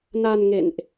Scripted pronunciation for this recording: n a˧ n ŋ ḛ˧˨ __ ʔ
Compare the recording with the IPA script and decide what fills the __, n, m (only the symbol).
n